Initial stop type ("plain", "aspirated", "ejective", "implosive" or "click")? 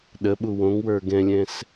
implosive